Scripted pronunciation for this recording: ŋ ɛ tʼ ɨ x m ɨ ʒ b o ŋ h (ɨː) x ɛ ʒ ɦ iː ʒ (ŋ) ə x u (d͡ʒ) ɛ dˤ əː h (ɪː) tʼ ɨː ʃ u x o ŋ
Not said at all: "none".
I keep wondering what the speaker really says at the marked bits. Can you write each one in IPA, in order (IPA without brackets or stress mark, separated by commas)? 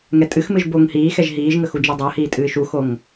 iː, ŋ, d͡ʒ, iː